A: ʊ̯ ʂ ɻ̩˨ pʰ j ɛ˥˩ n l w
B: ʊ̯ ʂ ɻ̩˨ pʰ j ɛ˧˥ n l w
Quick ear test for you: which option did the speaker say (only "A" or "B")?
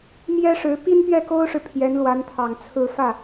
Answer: B